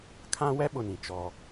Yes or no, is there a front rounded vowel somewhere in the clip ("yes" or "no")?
no